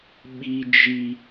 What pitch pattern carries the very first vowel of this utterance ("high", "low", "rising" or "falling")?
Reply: high